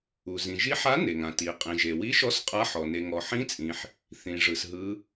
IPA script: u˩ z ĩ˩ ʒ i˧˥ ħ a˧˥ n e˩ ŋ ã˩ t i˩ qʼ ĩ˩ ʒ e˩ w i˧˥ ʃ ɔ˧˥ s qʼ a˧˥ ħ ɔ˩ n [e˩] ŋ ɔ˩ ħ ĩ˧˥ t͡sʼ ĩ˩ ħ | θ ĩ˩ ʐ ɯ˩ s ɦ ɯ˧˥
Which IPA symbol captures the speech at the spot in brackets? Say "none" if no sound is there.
e˩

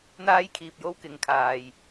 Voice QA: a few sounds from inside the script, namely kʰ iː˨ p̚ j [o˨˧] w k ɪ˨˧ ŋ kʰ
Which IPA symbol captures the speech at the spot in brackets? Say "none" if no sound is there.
o˥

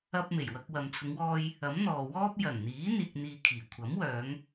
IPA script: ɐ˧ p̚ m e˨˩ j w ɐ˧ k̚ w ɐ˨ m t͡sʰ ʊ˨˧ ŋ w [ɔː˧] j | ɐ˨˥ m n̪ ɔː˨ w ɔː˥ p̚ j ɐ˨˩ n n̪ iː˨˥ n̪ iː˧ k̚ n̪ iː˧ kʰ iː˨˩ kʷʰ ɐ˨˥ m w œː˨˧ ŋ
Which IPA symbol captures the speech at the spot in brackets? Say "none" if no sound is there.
ɔː˧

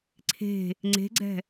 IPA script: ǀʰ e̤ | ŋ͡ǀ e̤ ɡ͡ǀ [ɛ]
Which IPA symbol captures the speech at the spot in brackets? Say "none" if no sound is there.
ɛ̤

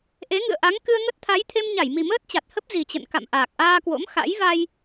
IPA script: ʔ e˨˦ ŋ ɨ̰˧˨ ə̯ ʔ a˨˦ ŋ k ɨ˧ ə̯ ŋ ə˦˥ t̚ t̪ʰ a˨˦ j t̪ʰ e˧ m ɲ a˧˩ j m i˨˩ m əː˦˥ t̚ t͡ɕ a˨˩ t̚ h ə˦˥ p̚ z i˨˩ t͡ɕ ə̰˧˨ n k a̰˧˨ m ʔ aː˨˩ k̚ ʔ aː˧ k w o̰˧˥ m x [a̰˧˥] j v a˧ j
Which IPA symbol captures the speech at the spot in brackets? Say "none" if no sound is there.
a̰˧˥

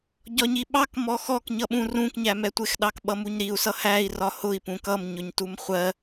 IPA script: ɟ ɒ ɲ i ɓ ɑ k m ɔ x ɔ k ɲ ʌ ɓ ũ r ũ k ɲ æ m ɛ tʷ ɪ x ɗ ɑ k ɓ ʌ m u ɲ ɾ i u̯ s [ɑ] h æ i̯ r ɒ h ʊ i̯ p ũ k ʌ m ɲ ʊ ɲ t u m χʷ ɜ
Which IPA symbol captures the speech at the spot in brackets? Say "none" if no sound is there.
ʌ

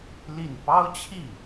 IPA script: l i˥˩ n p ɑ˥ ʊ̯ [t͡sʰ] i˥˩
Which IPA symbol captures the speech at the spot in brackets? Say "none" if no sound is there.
t͡ɕʰ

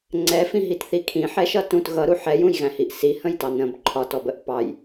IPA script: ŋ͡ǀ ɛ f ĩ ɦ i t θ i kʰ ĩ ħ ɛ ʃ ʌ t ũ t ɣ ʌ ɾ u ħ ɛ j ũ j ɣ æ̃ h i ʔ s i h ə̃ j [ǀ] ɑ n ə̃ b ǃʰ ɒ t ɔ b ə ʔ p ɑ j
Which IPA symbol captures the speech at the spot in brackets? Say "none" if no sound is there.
t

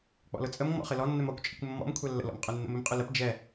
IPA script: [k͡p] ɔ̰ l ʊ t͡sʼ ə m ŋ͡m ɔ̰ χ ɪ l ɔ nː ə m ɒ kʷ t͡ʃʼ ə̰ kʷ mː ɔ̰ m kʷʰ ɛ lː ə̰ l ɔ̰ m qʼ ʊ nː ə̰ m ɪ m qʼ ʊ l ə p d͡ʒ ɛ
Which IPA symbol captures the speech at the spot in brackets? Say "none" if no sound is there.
k͡p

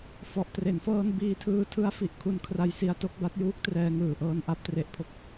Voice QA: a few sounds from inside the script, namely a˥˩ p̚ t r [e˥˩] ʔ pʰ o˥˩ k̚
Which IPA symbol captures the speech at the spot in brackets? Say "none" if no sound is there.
e˥˩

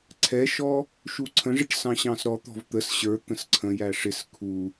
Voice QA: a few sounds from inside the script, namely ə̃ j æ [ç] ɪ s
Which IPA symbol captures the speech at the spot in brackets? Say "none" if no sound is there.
ʂ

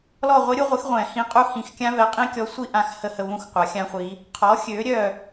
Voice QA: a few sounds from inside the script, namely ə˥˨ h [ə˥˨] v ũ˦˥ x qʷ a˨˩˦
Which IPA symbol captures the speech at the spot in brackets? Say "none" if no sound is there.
ə˥˨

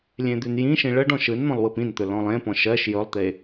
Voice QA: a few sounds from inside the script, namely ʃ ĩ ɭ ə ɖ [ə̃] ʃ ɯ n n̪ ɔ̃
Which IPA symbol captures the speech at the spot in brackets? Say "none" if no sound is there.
ɔ̃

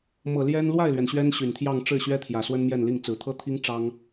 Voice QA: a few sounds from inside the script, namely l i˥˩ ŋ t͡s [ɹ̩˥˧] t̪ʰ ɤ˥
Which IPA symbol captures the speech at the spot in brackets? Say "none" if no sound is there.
ɹ̩˨˩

